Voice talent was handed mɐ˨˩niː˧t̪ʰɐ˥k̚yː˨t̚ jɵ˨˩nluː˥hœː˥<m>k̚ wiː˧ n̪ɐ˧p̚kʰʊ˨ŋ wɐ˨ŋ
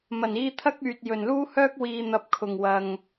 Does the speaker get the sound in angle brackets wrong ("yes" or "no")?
yes